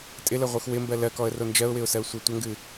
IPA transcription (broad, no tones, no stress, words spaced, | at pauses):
tʼɪləʁʷɨx wɪmbɜ lɜkɔə̯ro nd͡ʒɜʊ̯wɪʊ̯sɜʊ̯sʷɜ tʷəŋɡɨ